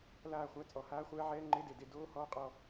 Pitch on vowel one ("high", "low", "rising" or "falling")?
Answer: falling